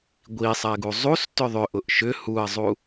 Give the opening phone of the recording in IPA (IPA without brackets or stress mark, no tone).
ɡʷ